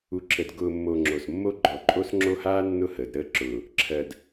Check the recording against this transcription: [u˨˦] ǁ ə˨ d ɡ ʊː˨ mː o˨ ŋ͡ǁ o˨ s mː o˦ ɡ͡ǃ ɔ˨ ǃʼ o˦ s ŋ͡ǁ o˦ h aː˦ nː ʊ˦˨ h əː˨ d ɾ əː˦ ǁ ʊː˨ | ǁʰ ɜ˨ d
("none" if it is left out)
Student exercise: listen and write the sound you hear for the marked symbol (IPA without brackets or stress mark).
u˨˦